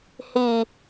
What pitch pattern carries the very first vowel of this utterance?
low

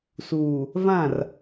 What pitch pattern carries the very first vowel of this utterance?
low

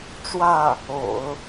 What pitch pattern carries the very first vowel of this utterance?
falling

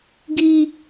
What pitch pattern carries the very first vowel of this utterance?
high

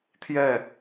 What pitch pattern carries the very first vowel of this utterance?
falling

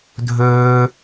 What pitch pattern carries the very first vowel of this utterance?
high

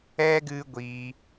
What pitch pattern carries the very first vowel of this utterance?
high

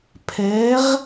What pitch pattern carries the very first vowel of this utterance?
rising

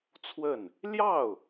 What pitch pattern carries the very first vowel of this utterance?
falling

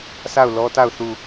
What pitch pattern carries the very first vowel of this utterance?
falling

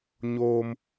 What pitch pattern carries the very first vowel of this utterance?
high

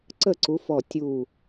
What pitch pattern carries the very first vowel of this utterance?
falling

